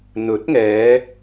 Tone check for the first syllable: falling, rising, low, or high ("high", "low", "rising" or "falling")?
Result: rising